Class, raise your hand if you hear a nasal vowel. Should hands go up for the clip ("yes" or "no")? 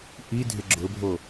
no